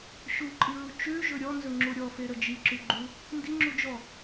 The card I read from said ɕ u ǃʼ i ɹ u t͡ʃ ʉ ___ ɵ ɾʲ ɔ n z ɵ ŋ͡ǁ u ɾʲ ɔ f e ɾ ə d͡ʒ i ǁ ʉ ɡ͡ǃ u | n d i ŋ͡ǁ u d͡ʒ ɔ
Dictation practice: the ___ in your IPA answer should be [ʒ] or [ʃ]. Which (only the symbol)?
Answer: ʒ